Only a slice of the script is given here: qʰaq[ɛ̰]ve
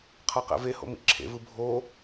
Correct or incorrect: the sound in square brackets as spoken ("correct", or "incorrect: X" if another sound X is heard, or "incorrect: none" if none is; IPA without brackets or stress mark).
correct